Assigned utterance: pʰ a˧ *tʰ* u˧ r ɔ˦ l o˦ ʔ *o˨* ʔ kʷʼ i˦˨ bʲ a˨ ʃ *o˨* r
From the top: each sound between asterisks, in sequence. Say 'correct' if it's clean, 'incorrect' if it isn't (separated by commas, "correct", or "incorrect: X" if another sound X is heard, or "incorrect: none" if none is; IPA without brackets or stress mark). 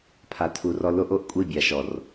correct, correct, incorrect: ɔ˨